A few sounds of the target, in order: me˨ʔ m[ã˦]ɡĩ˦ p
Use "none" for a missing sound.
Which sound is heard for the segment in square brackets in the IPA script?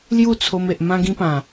ã˦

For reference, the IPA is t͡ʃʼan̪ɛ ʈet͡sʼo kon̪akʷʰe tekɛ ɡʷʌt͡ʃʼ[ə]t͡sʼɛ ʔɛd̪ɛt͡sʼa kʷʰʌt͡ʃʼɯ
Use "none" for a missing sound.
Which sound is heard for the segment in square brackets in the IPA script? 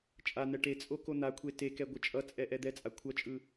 ʌ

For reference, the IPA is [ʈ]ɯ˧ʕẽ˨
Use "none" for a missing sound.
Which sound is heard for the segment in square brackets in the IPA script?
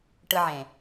ʈ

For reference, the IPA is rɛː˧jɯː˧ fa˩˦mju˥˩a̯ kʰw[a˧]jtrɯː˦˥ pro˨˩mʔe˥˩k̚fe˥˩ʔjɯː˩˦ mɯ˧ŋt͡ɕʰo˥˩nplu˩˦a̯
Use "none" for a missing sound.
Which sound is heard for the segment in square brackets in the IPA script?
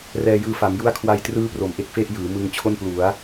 a˧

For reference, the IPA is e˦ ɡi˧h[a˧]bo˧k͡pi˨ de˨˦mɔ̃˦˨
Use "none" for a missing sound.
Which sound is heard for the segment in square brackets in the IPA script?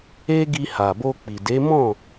a˨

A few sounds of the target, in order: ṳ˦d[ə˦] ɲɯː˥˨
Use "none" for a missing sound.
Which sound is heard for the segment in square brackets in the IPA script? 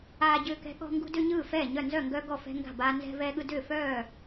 ʏ˦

